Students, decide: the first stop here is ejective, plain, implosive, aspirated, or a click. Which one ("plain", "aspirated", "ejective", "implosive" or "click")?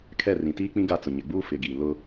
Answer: aspirated